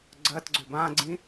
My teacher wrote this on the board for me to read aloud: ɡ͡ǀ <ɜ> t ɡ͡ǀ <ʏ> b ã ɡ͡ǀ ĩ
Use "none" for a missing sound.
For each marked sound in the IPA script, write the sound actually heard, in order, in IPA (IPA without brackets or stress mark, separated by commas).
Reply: ɜ, ʏ